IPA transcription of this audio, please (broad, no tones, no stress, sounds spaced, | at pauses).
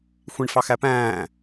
xʷ ĩ ɳ f ɑ x æ p æ̃ː